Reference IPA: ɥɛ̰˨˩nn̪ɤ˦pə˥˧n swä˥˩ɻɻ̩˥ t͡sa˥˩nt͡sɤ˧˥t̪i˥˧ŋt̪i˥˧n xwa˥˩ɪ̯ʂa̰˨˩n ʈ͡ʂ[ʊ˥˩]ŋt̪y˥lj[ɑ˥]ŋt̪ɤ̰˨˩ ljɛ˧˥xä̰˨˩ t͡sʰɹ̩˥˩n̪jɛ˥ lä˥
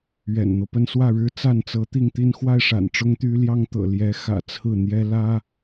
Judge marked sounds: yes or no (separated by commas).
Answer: no, yes